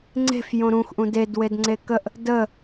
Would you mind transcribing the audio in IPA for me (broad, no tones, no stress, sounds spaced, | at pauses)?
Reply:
ŋ͡ǀ e̤ f j õ ɾ ũ x ʔ ũ d e d w e d ŋ͡ǀ e k ə ʔ | d ə